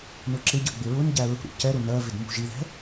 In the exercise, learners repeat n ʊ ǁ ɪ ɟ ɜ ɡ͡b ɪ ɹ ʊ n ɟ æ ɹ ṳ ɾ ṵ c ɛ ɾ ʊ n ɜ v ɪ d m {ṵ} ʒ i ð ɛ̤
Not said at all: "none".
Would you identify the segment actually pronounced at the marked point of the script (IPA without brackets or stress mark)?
ṳ